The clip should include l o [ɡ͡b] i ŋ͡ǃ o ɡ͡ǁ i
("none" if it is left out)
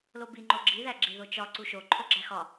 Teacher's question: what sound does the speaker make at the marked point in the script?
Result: b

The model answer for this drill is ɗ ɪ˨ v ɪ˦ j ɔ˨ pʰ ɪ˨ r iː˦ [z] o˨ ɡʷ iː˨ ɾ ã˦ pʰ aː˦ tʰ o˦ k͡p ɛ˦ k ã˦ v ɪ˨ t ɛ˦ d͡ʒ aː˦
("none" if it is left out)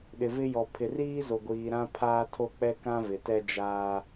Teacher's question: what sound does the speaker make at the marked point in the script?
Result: z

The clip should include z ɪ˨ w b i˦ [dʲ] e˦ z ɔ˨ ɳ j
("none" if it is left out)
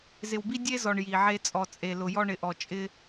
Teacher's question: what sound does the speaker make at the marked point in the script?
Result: dʲ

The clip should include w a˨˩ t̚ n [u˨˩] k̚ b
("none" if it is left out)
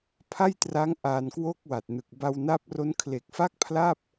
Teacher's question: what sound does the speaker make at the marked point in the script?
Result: ɯ˨˩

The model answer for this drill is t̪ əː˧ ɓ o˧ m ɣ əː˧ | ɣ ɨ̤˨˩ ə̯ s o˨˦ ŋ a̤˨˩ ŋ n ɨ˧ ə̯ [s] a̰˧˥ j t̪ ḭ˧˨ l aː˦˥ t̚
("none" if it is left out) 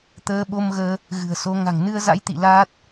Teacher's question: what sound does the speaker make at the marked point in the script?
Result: z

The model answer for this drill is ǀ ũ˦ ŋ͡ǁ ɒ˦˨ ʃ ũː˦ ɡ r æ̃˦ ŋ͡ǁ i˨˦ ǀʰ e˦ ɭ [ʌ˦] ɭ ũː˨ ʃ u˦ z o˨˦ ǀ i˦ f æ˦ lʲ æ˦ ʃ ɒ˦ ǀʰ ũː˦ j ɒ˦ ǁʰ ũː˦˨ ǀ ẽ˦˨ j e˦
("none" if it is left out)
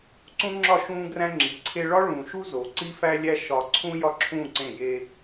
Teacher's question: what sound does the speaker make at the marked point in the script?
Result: ɒ˦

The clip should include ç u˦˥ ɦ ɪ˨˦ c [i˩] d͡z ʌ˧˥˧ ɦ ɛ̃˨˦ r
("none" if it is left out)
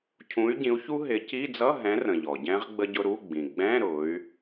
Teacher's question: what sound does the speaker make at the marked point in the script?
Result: i˧˥˧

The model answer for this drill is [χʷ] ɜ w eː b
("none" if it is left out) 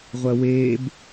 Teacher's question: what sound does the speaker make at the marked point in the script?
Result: ʁʷ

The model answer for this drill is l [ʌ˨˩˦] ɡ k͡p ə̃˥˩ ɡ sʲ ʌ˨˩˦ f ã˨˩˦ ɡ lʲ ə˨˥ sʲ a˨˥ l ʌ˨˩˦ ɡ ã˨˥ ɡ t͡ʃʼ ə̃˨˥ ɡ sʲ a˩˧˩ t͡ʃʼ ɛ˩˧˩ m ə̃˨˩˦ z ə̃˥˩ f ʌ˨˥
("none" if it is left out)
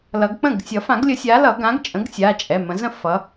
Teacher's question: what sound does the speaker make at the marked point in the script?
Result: ʌ˨˩˦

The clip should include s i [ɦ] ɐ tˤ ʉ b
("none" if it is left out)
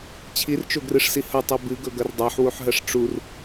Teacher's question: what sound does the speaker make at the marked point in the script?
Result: h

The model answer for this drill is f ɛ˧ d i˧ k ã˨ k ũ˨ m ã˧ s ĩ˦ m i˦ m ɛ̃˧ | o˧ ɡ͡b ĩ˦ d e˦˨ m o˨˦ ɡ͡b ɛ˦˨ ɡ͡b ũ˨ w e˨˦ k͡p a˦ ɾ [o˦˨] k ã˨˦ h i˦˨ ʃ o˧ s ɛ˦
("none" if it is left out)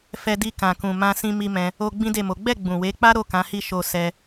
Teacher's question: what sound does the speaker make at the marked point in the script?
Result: o˦˨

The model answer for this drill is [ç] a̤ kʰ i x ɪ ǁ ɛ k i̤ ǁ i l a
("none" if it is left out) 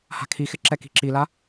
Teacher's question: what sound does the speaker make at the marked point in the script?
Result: h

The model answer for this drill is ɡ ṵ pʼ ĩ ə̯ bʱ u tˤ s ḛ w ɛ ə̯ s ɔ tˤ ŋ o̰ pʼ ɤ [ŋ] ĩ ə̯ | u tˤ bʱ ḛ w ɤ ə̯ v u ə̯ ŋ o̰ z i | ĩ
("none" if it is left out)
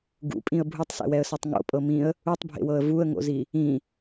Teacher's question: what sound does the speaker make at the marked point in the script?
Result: m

